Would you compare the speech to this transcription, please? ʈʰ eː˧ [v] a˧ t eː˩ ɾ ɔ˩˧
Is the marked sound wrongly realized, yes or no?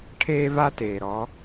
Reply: no